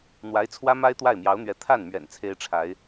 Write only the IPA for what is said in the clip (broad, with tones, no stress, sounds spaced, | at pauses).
n̪ w a˧˥ ɪ̯ t͡sʰ w ä˥ m a˥ ɪ̯ t̪ w a˥˩ ɪ̯ m j ɑ˧˥ ʊ̯ n̪ ɥ ɛ˧˥ t̪ʰ a˥˩ n m ɥ ɛ̰˨˩ n t͡sʰ e˥ ɪ̯ ʈ͡ʂʰ a˧˥ ɪ̯